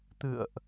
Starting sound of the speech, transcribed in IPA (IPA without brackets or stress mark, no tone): t̪